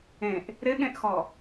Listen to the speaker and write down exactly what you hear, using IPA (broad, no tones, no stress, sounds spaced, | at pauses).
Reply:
ẽ ʔ | ɾ ɪ ɠ ẽ ʔ x ɔ